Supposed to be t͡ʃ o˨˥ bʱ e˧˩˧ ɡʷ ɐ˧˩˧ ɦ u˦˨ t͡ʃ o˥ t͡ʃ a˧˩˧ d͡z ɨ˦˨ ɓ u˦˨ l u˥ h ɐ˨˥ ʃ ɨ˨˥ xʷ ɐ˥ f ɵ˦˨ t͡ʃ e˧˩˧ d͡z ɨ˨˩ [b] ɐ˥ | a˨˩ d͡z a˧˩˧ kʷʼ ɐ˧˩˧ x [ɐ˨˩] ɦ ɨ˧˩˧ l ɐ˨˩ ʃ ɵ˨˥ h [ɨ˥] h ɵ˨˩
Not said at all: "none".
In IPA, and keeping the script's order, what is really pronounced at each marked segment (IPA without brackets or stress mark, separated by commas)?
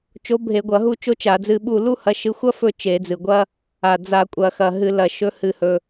ɡʷ, ɐ˨˩, ɨ˨˩